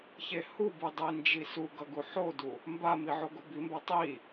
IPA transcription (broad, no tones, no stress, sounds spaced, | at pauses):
ç e h u b ɯ dˤ i n d͡ʒ i s u ɡ ʌ ɡ u ħ o d u | m b a m i ʕ o ɡ o b i m b a tˤ i